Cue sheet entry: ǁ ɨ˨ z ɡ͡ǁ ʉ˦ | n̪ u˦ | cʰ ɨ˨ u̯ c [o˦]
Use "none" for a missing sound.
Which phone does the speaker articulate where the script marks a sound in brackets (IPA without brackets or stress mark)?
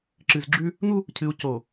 o˨